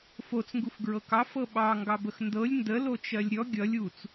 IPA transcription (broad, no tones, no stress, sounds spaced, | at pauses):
f o t͡s ŋ ɡ u f ɡ ɹ ɤ k ɑ f ɤ ɓ ɑ ŋ ɡ ɑ b ə x n d ɤ lʲ n d ə l o t͡ʃ ɜ lʲ ɾʲ ɔ ɡʲ ʌ lʲ u t͡s